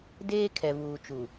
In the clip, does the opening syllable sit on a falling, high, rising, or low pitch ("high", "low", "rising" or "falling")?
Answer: high